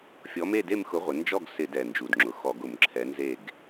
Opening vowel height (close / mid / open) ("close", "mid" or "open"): mid